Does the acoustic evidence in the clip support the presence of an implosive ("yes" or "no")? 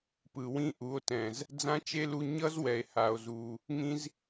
no